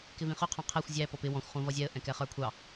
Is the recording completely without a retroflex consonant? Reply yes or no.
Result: yes